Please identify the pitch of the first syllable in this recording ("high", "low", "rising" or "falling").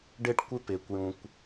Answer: high